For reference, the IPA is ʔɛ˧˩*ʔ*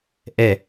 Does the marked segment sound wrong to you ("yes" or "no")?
yes